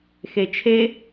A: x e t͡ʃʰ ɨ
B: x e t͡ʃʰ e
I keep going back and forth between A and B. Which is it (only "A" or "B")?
B